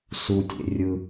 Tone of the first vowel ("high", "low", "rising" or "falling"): low